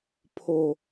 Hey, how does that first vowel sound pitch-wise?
high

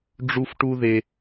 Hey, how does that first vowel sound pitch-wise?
high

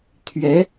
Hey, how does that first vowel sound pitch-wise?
rising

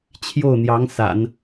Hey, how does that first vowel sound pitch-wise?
falling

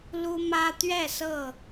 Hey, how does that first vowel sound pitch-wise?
high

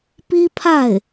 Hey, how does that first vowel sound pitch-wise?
high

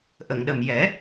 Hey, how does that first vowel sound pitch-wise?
low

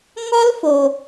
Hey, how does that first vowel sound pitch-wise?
high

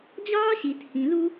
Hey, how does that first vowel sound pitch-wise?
high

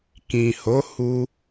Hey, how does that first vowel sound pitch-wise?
low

